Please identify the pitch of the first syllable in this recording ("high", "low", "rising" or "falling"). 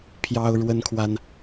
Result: high